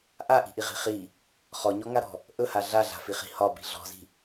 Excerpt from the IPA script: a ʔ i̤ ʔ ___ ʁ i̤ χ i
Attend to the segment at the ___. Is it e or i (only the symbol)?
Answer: i